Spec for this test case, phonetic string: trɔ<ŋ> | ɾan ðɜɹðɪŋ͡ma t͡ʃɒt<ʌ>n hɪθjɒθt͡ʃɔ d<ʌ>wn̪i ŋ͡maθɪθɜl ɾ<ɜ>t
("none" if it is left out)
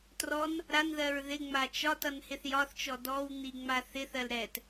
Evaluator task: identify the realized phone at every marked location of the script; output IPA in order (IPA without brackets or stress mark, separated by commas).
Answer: n, ʌ, ɔ, ɛ